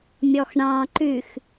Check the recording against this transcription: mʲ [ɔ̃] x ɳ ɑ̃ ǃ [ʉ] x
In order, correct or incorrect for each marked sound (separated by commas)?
incorrect, correct